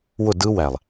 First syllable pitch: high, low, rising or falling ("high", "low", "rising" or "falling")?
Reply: falling